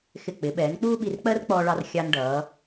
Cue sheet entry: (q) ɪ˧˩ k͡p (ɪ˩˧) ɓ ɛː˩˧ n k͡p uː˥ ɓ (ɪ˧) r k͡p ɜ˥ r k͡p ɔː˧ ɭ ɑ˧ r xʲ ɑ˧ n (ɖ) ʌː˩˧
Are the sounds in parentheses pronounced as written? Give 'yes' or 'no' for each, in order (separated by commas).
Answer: no, yes, no, yes